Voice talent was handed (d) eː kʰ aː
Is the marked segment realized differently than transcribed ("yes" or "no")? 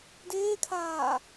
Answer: no